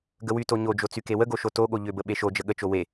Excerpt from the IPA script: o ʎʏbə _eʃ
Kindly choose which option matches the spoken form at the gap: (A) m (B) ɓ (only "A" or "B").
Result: B